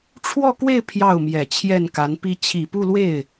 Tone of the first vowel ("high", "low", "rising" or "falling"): falling